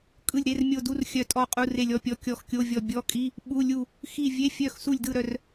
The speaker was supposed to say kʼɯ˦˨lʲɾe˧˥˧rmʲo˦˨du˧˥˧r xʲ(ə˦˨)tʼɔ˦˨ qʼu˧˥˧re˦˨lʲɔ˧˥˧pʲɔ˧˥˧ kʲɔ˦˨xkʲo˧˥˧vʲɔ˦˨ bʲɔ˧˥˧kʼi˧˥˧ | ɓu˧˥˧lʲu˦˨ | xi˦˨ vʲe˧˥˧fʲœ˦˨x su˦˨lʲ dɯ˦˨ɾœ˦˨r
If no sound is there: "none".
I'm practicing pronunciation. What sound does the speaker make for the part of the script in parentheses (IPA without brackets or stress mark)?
œ˦˨